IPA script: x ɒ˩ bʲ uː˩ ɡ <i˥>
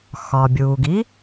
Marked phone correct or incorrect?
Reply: correct